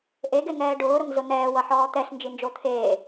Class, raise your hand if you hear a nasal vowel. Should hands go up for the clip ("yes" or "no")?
no